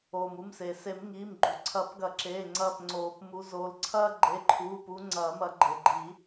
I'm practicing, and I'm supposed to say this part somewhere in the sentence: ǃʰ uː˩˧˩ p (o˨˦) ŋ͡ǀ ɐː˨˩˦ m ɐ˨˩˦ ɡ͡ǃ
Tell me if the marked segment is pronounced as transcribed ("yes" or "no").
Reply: no